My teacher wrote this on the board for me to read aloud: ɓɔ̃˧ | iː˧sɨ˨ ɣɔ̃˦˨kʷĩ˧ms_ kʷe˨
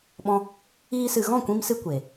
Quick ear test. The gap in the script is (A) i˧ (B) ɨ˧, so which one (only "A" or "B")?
B